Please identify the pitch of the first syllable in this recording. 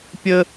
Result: high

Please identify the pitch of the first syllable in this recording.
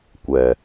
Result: low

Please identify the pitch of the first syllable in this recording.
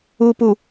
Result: low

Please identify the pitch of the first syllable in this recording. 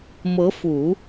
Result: rising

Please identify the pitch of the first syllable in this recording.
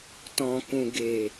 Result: low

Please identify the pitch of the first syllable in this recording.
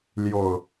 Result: low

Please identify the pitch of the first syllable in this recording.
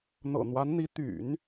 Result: low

